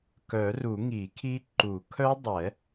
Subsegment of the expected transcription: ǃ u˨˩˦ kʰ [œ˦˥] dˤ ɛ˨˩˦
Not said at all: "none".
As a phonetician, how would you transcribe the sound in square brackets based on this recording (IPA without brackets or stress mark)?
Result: œ˦˥